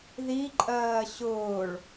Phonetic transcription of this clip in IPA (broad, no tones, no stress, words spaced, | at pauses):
ðiǃʼɜː ɕʊːɭ